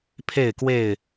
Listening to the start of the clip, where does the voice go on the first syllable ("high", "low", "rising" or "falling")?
falling